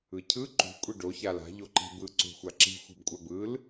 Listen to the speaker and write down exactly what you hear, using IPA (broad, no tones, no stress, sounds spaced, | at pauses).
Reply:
ɯ cʰ ɯ ǃ ṳ kʷʼ i ɖ o ç a l a̤ ʎ o ǃ i̤ b ɯ ǀ ṳ xʷ a ǁ i̤ xʷ i̤ b kʷʼ a b ɯ l